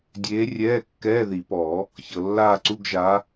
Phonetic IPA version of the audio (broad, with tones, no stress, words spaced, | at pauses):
dʲeː˨˦ rʲɛː˧˥˧kːɛː˧˥˧ði˨˩˦pɔ˨˩˦ | çɤ˩lːaː˦˨ǀu˧˥˧ɡ ʒa˨˦